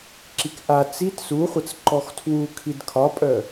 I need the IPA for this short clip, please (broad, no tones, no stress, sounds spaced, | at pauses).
ǁ i k ʔ a t͡s i t s u χʷ ə t͡s ǃ ɔ x tʰ w u kʰ i d kʰ ɒ pʼ œ